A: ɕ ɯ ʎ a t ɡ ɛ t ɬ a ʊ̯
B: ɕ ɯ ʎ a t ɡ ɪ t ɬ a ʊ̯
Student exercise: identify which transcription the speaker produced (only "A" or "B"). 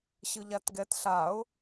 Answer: A